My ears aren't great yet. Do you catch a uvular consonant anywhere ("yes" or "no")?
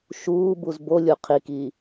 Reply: yes